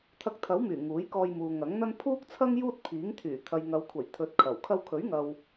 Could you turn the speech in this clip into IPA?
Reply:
t̪ʰɐ˧k̚t̪ʰɐ˨˥wmyː˨˩ ŋuː˨˥jkɔː˧jmuː˨ ŋɐ˨˥ŋn̪ɐ˥n pʰuː˥k̚t͡sʰɐ˥ŋ juː˥t̚pʰiː˨˥ŋt̪ʰyː˨˩ t̪ʰɐ˨jŋɐ˨˧wkʷʰɐ˨˩j t̪ʰɵ˨˥t̚kʰɐ˨˩w kʰɐ˧wkʰɵ˨˥ɥŋɐ˨w

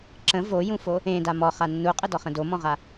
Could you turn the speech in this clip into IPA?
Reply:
ǁə̃ vojũfo | ẽda mɔχa nːuqʼədɔχə̃ domɔ̃ʁa

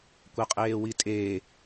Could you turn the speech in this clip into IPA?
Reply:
kʷaqʼeːwitʼeː

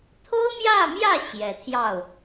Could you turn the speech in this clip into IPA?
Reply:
t̪ʰo˥ʊ̯mjä˥˧mjä˥˩ ɕjɛ˨˩t̪ʰjɑ˥˩ʊ̯

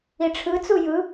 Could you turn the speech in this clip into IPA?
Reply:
iʈ͡ʂʰɯt͡su jɯ

